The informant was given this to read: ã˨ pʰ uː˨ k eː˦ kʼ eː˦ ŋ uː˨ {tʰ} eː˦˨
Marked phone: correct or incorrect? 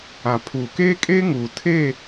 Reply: correct